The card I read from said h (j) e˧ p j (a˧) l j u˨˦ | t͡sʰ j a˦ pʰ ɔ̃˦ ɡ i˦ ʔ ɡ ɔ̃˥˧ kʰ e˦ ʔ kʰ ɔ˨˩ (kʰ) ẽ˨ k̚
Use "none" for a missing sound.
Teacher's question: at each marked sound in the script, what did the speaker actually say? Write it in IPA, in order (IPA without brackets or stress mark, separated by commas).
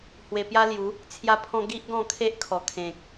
w, a˦, kʰ